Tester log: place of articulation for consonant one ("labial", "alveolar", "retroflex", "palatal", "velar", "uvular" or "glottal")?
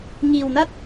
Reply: velar